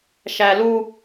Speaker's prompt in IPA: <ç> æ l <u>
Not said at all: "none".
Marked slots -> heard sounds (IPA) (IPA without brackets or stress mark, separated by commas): ʃ, u